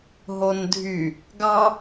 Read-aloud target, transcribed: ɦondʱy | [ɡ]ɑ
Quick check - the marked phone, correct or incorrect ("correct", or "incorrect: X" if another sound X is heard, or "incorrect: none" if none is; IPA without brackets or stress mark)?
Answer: correct